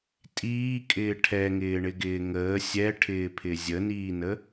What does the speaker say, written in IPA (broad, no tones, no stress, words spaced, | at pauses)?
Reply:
tʼiːkʼɪː ʈʰɛŋɪːɳɪɡɪː ŋəː sʲɛʈʰɪːpʰɪ zʲəniːnə